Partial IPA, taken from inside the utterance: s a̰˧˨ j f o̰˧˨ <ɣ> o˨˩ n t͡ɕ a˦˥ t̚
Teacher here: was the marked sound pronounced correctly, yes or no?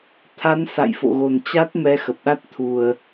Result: yes